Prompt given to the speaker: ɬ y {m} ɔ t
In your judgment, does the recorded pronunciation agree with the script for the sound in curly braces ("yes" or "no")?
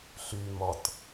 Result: yes